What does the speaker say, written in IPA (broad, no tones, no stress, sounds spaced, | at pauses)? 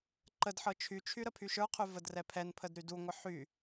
ǃ ə d ħ ɤ t͡ʃʰ y t͡ʃʰ y ɾ ə pʰ y ʃ ə˞ qʰ ʉ v ə d r ɛ pʰ ɛ n pʰ ə d ɾ y d u ŋʷ ə ħ y